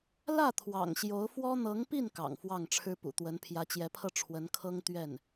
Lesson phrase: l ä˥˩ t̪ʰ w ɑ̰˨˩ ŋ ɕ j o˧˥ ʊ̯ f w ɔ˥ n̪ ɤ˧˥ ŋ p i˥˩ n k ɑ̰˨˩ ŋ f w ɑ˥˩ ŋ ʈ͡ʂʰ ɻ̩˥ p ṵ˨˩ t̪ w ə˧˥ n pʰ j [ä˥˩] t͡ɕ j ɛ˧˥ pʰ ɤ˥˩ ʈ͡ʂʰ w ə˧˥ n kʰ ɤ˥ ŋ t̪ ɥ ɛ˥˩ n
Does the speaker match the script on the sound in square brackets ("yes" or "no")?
no